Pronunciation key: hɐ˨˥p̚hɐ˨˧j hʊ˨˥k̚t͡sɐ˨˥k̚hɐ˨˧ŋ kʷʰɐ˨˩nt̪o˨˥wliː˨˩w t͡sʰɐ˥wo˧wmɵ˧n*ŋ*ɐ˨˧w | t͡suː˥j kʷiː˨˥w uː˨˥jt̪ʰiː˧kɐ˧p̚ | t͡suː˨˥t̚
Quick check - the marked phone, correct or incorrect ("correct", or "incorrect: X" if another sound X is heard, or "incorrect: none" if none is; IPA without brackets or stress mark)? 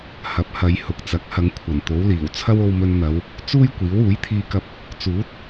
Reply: incorrect: n̪